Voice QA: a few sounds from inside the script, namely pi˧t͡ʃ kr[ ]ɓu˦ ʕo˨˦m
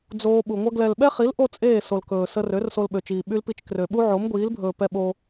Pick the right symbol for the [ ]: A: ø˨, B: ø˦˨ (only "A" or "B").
A